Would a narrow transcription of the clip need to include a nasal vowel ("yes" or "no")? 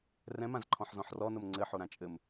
yes